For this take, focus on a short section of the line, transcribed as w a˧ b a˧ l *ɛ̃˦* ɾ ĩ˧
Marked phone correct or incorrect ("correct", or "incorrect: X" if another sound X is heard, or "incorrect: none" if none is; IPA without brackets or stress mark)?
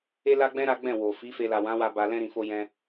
correct